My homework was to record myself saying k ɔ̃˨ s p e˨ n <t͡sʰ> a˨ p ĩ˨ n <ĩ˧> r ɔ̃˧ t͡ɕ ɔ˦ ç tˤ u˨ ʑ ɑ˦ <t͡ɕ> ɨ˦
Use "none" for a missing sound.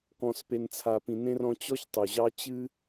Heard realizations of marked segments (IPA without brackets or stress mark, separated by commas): t͡sʰ, ẽ˧, t͡ɕ